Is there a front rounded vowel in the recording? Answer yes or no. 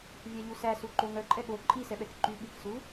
yes